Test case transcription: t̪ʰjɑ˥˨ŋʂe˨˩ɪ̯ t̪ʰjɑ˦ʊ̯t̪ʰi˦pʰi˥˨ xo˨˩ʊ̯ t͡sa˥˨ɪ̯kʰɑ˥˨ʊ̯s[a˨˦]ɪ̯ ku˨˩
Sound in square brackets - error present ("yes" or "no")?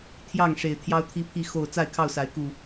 no